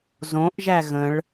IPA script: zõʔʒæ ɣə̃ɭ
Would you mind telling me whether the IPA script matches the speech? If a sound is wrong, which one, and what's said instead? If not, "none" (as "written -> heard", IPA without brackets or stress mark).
none